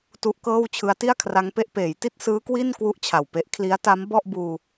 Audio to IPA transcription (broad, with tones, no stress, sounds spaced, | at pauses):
t u˦˥ ʔ k ɤː˥˩ w t͡ɕʰ ɯ˦˥ a̯ t i˥˩ a̯ kʰ r a˦˥ ŋ p e˦˥ ʔ p eː˩˦ j t i˥˩ t̚ s ɯː˦˥ k w i˥˩ n k w u˥˩ ʔ t͡ɕʰ a˨˩ w p e˦˥ ʔ kʰ l i˦˥ a̯ t a˦˥ m b ɔ˥˩ ʔ b uː˧